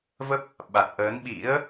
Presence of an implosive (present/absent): present